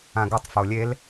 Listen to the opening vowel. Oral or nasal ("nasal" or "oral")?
nasal